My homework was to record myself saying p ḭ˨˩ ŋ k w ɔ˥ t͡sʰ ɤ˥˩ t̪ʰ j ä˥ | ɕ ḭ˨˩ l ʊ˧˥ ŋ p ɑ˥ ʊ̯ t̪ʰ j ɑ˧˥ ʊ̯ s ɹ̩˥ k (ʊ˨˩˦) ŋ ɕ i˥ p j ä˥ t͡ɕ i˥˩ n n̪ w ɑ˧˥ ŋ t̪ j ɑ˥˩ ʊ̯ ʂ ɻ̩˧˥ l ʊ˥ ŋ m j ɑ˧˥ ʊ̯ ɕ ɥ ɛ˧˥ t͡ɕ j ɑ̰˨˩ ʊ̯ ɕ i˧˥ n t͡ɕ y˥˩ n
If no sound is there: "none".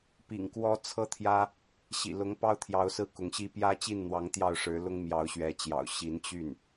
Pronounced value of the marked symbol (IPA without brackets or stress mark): ʊ˧˥